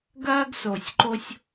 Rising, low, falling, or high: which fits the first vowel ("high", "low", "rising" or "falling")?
high